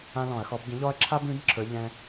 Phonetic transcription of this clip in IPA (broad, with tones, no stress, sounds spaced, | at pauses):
ã˦ l ɔ̃˧˩˧ ɐ̯ x ɔ˨˥ b ɟ ə̃˨˥ ʎ ɔ˦ ɐ̯ ǁʰ a˦ b ĩ˨˥ b ǁʰ ə˞˨˥ ʎ ɛ̃˦